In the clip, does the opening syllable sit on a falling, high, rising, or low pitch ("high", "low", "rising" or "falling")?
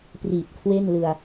low